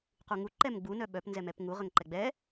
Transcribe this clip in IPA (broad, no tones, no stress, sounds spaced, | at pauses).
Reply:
q u ŋ u ǃ ɛ m ɡ͡b u n œ ɓ œ p n z ɛ m ɛ p ŋ u ʁ ə ŋ ǃ ɛ ɡ͡b ɛ